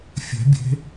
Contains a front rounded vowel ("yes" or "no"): no